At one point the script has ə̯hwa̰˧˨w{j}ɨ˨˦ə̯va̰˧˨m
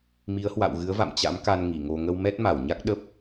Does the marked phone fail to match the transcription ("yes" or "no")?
yes